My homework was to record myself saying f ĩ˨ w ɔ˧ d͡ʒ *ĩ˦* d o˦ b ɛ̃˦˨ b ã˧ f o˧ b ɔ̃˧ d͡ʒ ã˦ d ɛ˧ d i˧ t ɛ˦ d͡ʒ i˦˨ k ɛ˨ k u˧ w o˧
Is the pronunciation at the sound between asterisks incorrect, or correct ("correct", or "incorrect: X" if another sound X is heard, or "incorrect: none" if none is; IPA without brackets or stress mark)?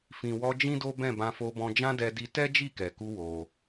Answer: correct